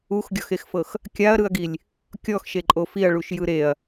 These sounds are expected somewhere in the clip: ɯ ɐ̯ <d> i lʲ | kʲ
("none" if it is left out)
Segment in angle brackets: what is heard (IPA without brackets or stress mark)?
ɡ